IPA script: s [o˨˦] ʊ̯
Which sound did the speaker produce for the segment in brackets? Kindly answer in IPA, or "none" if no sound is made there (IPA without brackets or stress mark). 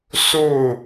o˥˨